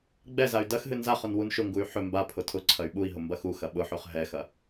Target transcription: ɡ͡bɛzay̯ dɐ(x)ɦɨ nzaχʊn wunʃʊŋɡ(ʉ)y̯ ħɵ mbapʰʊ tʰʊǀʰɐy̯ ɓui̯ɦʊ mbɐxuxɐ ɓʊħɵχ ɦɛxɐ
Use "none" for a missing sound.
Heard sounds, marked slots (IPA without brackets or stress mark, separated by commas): x, u